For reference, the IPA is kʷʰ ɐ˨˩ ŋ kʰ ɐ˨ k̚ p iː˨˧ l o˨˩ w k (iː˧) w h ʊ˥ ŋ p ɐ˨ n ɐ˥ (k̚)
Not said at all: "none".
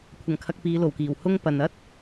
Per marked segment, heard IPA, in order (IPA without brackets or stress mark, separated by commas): iː˨˩, t̚